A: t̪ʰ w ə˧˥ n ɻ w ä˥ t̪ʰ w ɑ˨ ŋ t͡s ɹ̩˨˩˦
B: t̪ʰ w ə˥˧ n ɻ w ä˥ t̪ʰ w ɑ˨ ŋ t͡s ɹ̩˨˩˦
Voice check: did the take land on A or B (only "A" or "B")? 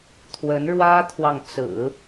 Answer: A